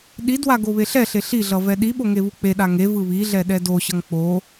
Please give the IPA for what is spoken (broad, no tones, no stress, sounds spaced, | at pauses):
ɗ i d w a ɡ o β e ɬ ɛ ɬ e ɬ i ɮ ʌ v ɛ ɗ i ɓ o ŋ e β u k͡p e ɗ a ŋ e v ɯ β i ɮ ɛ ɗ ɛ d o ɕ ʌ ŋ k͡p o